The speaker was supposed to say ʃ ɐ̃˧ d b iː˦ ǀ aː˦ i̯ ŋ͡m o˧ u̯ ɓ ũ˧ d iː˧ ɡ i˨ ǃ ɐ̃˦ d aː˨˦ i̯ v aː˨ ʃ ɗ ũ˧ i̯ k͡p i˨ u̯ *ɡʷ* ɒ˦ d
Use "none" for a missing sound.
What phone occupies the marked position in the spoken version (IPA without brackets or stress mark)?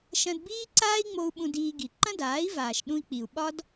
ɓ